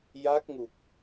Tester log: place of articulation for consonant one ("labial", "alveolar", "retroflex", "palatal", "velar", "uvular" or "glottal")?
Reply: palatal